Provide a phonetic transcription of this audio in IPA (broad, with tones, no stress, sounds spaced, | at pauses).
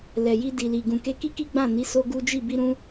l ɛ˨ j i˧ d i˨ l i˨ ɡ ũ˨ k e˧ k i˦ k i˦ ɡ͡b ã˦˨ n i˨˦ s o˦ ɡ u˦ d͡ʒ i˦˨ b i˧ ɾ ũ˧